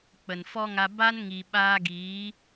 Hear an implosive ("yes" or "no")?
yes